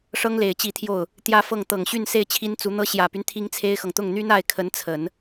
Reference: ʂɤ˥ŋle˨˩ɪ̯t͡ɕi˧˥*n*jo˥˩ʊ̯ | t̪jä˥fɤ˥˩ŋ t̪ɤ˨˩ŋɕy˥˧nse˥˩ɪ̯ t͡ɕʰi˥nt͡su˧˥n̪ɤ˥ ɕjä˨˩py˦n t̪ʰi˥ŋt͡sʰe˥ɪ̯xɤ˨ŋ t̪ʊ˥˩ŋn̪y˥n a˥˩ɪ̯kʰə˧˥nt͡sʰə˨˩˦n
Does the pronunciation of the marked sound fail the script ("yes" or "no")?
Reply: yes